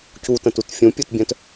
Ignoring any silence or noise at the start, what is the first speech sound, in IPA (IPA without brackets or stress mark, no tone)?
c